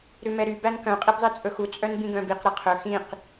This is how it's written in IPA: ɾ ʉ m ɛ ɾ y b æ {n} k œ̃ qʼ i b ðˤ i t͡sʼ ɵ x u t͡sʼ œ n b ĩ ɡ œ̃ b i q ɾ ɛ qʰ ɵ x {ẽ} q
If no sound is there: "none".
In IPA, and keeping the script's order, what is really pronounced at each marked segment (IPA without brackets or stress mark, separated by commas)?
n, ĩ